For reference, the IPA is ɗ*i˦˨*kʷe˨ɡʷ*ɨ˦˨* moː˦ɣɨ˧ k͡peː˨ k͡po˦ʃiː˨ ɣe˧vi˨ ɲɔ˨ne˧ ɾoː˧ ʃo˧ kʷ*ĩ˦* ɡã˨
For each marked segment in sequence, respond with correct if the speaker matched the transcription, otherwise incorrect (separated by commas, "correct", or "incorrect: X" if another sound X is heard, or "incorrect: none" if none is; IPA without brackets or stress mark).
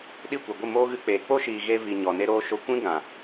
correct, correct, correct